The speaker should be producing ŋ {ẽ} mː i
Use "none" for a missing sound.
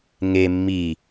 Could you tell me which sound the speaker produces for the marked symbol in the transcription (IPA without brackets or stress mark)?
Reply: e